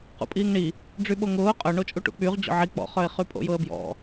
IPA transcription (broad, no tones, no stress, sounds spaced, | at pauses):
q ṵ pʼ iː ŋ ɳ i | ɖ͡ʐ y ɓ o ŋ ʊː qʼ œ ɳ o t͡ʃʼ u ʈ ṵ k͡p y ʁ d͡ʑ ɔ̰ ʕ i k͡p ɔ̰ χ œ ɪ̯ χ y pʼ o̰ j ʊ ə̯ b j ɔ̰